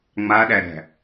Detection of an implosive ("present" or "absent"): present